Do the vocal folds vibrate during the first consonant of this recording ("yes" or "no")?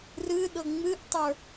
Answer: yes